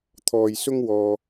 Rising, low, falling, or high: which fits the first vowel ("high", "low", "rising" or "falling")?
low